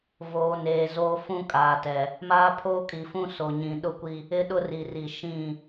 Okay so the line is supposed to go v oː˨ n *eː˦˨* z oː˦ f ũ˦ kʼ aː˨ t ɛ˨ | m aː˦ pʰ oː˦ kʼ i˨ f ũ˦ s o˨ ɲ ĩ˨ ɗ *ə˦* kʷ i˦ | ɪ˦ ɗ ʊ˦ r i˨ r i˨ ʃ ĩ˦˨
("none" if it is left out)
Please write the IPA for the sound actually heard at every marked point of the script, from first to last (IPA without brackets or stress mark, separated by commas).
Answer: eː˨, ʊ˦